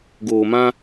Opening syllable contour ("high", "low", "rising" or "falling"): low